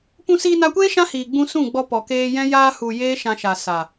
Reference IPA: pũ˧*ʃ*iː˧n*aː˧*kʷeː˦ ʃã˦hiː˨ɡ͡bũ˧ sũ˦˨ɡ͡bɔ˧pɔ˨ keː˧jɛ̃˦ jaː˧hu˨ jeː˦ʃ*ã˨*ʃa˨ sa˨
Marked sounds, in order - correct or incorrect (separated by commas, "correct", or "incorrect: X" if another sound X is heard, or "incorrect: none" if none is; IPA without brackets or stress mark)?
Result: incorrect: s, incorrect: a˧, incorrect: ã˧